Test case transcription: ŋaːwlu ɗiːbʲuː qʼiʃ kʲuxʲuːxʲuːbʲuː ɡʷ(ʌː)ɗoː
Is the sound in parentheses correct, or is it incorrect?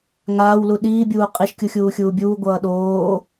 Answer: correct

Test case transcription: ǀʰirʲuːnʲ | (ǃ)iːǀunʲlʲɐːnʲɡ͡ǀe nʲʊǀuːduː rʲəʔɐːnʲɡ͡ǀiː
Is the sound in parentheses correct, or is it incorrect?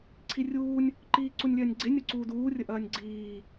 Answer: correct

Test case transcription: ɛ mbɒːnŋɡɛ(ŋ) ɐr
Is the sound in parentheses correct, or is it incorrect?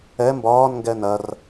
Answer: incorrect: n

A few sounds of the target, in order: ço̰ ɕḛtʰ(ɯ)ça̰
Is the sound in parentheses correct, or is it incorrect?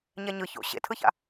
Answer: correct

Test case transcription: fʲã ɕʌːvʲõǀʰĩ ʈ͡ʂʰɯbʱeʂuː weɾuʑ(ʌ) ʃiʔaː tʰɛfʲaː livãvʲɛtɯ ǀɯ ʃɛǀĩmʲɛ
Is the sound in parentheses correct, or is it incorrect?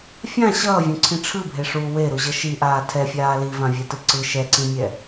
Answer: correct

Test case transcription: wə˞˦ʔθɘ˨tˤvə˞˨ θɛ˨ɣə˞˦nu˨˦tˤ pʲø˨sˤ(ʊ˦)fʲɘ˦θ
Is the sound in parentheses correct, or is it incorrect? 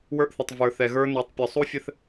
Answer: incorrect: u˦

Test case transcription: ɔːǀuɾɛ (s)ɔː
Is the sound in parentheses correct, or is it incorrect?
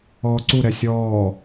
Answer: incorrect: sʲ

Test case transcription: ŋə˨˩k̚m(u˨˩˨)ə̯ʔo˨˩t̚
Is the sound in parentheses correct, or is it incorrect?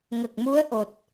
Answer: incorrect: u˧˥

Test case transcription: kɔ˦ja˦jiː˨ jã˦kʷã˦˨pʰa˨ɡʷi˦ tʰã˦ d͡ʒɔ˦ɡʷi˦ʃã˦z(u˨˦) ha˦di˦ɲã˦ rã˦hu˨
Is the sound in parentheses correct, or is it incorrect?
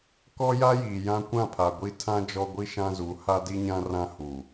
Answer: correct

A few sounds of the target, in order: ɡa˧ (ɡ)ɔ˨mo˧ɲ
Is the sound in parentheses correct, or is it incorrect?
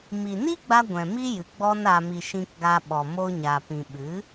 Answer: incorrect: ɓ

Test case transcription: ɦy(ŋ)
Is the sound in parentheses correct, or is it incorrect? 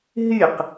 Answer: incorrect: q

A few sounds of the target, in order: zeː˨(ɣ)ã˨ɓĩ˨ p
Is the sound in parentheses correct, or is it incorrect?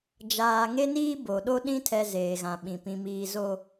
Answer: correct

